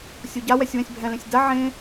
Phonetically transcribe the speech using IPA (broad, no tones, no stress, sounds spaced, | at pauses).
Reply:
sʲ o ɟ a w ɛ sʲ w ɛ̃ sʲ bʱ ɛ̃ l ẽ sʲ d a ʕ ẽ